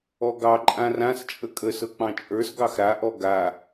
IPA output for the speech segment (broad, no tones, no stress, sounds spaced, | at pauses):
ɔ ɡ ɑ ǃʼ ã r ã s t͡ʃʼ ə kʼ ə s ɤ k͡p ɑ̃ t͡ʃʼ ə˞ s ɡ ɑ x ɾ a ʔ ɔ ɡ a